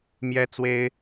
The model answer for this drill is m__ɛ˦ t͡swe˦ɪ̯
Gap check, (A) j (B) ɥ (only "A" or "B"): A